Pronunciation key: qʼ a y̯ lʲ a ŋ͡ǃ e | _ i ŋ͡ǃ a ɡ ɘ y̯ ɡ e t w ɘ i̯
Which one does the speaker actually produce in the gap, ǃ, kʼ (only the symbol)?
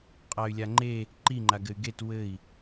ǃ